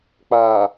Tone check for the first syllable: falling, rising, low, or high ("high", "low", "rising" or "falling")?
low